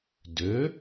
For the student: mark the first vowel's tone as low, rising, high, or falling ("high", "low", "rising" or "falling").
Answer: rising